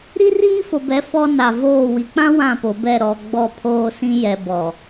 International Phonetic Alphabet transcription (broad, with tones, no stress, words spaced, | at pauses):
ɾi˦riː˦fo˨bɛ˨˦ fɔ˦ na˨ voː˦˨ wi˨k͡pã˦ wã˦˨po˨bɛ˦˨ ɾɔ˨ ɡ͡bɔ˦˨ pʰoː˦sĩ˦ jɛ˨bɔ˨